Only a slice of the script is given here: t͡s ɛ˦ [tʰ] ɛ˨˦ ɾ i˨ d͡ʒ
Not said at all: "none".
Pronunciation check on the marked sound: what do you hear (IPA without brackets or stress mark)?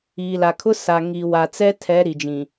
tʰ